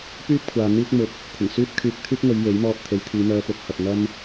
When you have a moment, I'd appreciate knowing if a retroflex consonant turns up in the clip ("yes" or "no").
no